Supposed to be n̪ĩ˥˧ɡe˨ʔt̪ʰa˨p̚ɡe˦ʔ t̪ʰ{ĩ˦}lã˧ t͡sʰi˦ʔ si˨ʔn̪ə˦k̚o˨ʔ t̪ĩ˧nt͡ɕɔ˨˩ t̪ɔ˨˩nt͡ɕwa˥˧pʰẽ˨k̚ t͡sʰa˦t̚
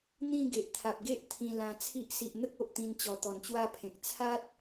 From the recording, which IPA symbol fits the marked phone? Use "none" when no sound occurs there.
ĩ˧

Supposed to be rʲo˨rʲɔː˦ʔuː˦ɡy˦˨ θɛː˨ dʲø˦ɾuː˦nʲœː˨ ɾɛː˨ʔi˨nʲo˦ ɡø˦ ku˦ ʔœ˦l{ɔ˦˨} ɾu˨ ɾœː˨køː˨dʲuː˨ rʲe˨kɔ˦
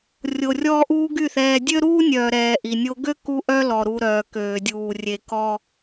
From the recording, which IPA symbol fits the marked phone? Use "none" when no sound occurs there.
ɔ˨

